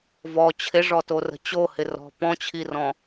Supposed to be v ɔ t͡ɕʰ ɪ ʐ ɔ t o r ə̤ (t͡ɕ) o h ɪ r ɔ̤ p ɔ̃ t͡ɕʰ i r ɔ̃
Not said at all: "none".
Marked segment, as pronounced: t͡ɕ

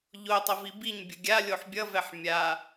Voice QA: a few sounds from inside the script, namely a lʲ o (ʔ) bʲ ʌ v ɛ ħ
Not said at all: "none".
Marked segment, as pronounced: ħ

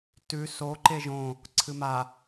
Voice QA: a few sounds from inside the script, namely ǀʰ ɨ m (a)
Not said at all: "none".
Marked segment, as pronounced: a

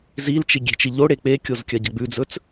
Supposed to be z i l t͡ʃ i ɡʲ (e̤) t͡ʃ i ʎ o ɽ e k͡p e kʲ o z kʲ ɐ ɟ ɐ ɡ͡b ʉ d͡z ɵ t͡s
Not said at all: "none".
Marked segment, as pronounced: e̤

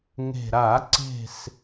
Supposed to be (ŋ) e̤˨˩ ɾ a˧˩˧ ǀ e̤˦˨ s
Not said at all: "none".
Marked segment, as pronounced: ŋ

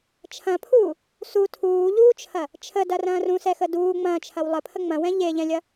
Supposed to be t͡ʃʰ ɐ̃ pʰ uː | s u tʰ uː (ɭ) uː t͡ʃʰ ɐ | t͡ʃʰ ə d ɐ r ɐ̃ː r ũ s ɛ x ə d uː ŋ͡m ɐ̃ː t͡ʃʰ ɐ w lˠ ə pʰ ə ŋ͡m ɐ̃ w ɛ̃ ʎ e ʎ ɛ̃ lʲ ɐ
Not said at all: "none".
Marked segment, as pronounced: ʎ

